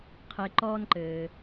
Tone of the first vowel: low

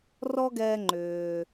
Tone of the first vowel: high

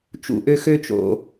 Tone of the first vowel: low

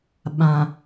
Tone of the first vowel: low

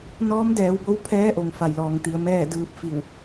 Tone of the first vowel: rising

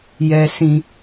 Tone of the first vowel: low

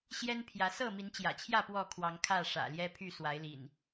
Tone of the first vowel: high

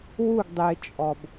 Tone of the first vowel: falling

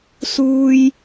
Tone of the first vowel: high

